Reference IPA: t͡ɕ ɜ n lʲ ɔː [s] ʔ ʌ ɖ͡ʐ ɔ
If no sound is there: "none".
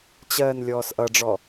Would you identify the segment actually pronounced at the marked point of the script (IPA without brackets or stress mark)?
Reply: s